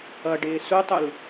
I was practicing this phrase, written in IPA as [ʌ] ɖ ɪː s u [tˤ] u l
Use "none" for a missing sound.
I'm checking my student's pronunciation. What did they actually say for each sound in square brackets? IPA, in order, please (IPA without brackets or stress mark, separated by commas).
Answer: ʌ, tˤ